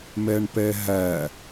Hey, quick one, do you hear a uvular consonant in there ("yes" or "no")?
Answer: no